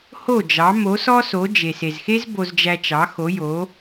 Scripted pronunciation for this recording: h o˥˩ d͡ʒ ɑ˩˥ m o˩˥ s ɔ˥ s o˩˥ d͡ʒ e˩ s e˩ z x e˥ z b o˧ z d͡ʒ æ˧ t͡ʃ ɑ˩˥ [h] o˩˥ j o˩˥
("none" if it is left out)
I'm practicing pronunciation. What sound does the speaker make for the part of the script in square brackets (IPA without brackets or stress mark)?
x